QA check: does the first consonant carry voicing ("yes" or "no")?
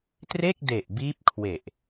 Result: no